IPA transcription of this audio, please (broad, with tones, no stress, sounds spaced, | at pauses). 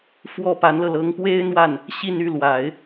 f w ɔ˥˩ p a˧˥ n l ɤ˧ l ɤ˧˥ ŋ p w e˥ ɪ̯ n̪ w a˥˩ n | ɕ i˥˧ n y˥˩ l w a˨˩˦ ɪ̯